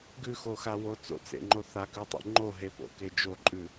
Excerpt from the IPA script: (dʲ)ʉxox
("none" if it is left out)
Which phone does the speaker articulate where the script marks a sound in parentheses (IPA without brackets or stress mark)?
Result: ɡ